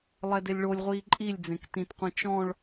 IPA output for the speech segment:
lˠ ɛ d e lʲ ɭ o lʲ ʁʷ iː ǃʼ i lʲ d͡z ẽ k t ĩ t qʷ ẽ t͡ʃ ɔ̃ ɭ

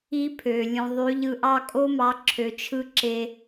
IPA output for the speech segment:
i˦ pʰ ø˨ lʲ ũ˨ ðˤ y˨˦ ʎ ɯ˧ ʔ ɑ˦ kʼ o˦ m ɑ˨˦ ǁʰ ø˨ t͡ʃʰ ɯ˧ ǁ e˧

